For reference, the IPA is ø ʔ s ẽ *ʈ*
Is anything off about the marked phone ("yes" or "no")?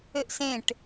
no